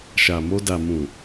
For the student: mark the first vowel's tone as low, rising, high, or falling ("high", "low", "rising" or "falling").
low